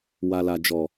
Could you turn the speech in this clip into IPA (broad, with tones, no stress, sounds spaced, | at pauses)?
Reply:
w a˨ l a˨ d͡ʒ ɔ˨